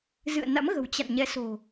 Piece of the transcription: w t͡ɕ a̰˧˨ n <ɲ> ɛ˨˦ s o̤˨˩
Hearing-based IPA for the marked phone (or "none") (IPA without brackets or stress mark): ɲ